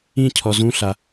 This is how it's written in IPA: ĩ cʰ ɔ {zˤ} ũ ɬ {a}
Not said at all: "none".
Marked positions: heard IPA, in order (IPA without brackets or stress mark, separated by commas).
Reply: z, a